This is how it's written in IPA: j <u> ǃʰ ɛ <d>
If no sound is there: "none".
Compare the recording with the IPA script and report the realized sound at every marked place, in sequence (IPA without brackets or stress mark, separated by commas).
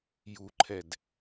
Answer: u, d